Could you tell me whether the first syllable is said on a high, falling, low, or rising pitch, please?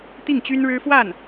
falling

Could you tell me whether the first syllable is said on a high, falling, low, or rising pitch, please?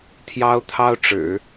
high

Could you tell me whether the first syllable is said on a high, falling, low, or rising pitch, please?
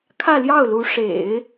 falling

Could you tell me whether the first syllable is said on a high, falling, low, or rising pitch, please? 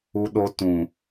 high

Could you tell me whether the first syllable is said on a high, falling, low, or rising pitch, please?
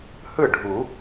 falling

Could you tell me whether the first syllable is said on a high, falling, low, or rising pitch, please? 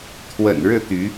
low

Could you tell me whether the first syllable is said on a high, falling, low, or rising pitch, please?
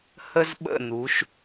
high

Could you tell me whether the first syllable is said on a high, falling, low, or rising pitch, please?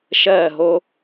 falling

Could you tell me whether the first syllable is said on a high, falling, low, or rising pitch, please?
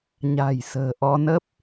low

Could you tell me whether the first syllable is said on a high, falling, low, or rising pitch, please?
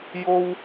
high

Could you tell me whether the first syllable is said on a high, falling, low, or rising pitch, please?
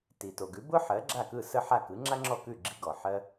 low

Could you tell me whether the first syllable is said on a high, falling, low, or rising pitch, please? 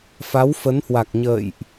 rising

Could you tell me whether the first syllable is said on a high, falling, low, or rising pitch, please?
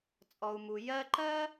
low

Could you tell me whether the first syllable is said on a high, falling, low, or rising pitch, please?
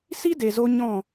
high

